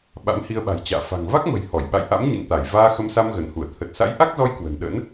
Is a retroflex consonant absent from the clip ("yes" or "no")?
yes